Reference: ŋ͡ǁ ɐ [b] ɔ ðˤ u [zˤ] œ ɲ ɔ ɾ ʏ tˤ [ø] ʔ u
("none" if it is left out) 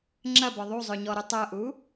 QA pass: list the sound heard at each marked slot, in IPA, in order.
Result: b, zˤ, œ

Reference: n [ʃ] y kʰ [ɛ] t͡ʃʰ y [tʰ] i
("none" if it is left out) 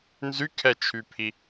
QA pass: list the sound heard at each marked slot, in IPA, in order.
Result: z, ɛ, pʰ

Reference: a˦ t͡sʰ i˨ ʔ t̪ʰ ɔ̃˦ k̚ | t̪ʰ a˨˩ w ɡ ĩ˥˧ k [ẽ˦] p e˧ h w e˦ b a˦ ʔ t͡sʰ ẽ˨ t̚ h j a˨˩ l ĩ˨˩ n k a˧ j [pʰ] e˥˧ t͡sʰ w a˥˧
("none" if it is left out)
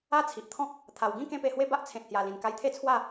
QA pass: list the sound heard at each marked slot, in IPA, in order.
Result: ẽ˦, t̪ʰ

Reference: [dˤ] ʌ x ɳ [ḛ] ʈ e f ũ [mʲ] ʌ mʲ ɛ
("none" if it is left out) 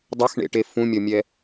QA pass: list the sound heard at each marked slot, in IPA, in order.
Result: dˤ, ḛ, mʲ

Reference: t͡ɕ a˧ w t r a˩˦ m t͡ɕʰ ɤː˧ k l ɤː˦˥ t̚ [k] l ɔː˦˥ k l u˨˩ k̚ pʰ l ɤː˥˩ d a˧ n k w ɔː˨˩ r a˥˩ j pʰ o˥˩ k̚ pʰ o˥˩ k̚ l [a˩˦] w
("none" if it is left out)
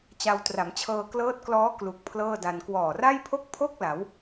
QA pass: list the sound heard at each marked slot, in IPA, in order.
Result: k, a˩˦

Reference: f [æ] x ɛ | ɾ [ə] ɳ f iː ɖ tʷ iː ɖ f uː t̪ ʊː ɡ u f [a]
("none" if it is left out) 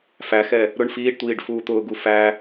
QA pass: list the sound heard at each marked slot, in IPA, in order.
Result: æ, ʊ, æ

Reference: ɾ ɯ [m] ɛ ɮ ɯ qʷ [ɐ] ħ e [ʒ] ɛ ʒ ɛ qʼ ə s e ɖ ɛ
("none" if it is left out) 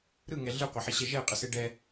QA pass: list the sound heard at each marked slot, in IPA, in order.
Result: ŋ, ɐ, ɕ

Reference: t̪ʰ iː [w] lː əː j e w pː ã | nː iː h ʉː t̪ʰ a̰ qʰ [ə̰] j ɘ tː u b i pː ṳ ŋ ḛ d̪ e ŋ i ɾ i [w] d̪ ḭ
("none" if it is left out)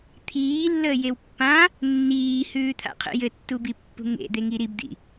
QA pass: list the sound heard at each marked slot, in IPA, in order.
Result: none, ə̰, b

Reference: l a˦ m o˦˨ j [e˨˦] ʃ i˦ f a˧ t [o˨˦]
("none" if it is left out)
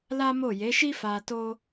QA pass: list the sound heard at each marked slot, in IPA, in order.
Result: e˨˦, o˦

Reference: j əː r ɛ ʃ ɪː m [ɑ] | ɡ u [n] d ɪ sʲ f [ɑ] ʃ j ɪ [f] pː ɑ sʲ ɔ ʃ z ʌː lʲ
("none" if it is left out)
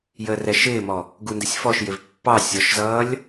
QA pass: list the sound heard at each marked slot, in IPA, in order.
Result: ɔ, n, ɔ, v

